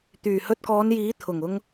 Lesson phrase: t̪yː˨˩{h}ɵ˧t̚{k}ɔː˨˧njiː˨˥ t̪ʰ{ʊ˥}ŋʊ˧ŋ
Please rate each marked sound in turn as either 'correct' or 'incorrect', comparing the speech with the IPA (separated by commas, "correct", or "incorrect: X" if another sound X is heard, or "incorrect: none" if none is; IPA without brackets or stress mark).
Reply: correct, correct, incorrect: ʊ˨˩